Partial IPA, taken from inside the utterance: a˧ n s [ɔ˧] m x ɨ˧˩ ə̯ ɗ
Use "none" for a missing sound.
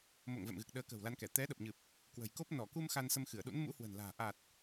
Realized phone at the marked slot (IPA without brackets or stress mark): ə˧